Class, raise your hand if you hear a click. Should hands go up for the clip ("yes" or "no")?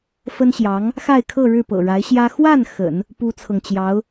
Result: no